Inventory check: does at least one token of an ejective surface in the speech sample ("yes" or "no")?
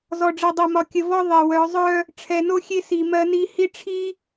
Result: no